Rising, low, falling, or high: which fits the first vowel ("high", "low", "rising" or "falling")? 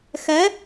rising